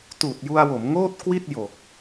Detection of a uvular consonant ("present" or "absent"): absent